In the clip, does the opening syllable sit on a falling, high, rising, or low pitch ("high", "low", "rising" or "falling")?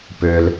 low